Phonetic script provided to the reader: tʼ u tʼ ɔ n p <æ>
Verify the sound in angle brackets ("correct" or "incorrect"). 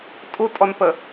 incorrect